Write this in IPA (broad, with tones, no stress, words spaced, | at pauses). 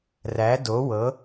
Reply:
ræ˩˥do˩˥ wɤ˩˥